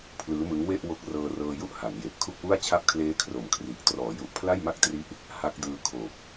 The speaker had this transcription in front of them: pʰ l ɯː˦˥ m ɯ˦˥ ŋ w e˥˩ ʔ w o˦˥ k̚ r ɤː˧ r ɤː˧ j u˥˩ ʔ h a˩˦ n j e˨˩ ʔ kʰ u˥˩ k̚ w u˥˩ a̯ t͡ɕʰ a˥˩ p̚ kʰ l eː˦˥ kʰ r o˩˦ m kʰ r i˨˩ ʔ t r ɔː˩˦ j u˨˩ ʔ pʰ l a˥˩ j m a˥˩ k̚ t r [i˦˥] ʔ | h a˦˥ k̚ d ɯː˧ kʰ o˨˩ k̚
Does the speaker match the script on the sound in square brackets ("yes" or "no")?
yes